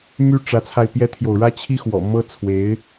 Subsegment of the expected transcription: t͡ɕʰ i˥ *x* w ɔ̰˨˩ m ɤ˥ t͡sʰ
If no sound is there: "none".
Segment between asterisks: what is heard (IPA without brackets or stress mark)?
x